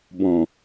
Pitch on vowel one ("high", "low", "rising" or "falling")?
low